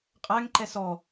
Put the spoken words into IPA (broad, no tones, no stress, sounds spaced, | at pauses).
qʼ æ ŋ ǃ ɛ s ɔ